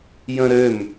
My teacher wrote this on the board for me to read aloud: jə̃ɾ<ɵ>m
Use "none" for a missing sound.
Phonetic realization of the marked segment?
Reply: ø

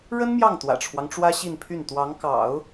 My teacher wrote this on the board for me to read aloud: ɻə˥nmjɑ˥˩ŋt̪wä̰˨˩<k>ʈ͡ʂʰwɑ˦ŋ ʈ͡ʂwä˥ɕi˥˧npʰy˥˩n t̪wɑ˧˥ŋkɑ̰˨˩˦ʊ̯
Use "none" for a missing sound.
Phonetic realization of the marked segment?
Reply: none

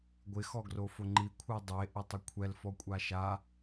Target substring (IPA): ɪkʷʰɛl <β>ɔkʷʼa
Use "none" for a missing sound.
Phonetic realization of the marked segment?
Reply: f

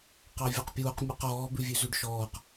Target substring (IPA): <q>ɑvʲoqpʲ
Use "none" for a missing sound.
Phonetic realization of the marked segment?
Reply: q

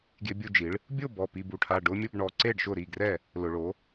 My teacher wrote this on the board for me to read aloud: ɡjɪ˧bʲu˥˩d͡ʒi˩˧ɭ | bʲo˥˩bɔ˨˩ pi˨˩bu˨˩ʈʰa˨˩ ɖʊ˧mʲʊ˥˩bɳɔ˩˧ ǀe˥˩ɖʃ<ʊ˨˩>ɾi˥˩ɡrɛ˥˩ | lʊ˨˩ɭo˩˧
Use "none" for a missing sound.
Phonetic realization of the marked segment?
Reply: ʊ˥˩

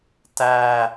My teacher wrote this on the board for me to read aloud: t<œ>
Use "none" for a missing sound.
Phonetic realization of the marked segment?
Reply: æ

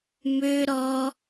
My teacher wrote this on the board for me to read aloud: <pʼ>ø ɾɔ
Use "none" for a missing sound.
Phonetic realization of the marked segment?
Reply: m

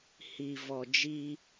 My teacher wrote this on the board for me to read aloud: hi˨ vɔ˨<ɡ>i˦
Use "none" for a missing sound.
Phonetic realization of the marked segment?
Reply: d͡ʒ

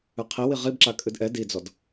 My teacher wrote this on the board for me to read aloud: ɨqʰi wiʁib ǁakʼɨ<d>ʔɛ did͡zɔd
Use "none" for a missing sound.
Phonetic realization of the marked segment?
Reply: d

